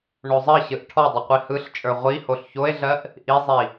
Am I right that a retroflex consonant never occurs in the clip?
no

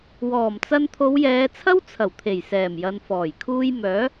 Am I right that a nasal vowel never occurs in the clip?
yes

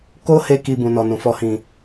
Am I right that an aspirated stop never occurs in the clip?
yes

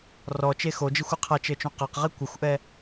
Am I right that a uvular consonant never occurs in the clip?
no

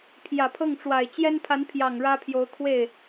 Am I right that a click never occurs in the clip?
yes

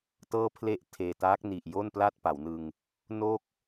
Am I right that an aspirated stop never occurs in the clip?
no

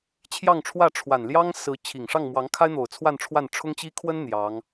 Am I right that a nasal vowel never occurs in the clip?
yes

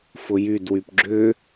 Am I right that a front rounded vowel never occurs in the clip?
no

